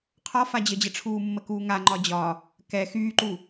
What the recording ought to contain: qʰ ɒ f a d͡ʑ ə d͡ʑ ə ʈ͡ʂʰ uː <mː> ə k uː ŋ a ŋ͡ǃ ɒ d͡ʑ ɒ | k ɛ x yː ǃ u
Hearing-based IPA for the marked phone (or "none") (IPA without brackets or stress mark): mː